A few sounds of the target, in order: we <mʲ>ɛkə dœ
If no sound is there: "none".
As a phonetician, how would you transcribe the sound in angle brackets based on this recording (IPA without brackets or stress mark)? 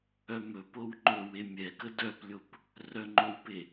mʲ